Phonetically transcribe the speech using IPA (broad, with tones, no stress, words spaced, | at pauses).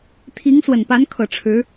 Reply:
t̪ʰi˧˥ŋ swə˨˩npa˧˥nkʰɤ˨˩ ʈ͡ʂʰɻ̩˧˥